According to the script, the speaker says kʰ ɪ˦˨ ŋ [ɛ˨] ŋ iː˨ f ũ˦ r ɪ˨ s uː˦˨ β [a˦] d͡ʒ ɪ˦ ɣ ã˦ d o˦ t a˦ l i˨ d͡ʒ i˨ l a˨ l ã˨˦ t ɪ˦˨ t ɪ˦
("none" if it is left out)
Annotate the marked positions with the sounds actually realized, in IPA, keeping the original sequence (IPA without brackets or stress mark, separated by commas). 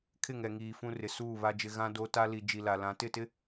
ɛ˨, a˦